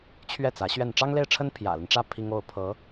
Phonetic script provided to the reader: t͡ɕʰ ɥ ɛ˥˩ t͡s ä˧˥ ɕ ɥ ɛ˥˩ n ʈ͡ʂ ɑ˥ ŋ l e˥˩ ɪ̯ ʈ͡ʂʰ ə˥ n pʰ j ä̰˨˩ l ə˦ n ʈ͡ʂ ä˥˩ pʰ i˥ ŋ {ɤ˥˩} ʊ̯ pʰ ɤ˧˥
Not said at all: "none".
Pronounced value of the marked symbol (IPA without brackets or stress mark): o˥˩